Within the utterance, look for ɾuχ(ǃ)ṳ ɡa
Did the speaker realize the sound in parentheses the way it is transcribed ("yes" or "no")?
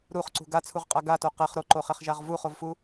no